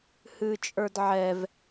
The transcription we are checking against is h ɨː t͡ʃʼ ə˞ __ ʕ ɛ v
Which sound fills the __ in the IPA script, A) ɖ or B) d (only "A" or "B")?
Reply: B